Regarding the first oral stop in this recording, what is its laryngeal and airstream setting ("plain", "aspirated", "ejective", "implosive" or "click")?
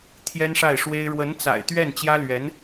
aspirated